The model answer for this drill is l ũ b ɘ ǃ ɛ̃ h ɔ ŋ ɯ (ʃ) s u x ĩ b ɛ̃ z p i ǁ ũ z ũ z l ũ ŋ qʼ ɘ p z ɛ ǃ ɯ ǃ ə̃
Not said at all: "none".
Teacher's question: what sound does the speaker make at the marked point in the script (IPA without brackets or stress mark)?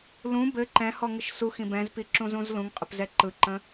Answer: ʃ